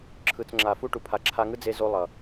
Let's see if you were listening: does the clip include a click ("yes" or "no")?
yes